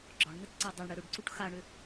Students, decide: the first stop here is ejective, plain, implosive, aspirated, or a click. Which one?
click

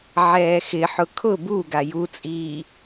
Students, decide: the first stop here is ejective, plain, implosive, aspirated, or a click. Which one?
aspirated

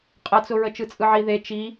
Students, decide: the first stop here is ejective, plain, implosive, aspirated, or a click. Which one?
ejective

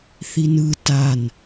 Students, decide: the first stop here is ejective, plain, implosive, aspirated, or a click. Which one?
plain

